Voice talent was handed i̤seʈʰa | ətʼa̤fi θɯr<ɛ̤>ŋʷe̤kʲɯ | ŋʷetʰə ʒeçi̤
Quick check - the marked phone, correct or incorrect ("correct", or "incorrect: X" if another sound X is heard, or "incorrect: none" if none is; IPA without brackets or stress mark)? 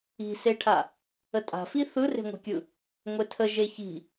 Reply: incorrect: e̤